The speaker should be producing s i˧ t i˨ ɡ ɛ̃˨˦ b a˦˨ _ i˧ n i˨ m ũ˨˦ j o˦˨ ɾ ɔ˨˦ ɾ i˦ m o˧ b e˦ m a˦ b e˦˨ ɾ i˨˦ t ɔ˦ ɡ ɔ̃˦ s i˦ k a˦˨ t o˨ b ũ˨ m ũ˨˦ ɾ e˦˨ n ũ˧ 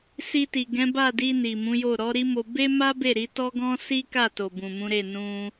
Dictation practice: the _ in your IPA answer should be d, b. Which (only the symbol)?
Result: d